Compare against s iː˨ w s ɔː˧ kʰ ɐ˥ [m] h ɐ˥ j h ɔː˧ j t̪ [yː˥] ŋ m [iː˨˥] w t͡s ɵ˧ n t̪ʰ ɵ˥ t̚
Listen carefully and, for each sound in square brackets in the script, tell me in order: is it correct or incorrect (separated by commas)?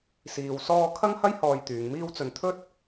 incorrect, incorrect, incorrect